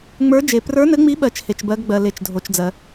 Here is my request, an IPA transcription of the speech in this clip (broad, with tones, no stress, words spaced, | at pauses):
ŋ͡mə˞˧˥d͡ʒe˨ prə˞˧˥nɘ˧˥ŋ͡mi˧˥ɓɜ˨t͡ʃ he˨t͡ʃbɜ˧˥ɡɡ͡bɜ˨ le˨t͡ʃdʱo˨t͡ʃd͡zɜ˨